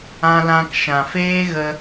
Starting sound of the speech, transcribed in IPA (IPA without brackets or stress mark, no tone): ã